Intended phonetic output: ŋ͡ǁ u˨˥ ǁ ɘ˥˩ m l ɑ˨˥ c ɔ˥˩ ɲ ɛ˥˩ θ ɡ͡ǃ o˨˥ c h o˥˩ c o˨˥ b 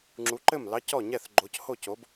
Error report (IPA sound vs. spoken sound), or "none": ǁ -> ǃ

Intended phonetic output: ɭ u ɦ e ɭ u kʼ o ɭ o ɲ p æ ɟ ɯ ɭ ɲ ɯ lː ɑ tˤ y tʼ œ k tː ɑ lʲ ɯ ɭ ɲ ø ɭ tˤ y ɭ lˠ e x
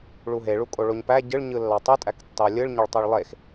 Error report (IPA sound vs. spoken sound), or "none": œ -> æ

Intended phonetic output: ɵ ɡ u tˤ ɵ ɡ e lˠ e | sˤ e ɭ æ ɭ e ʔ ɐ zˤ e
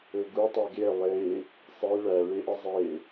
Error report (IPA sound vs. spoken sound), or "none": none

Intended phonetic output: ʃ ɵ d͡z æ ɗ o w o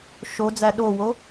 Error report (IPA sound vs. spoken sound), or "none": ɵ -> o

